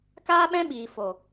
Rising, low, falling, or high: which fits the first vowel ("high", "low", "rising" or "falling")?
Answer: high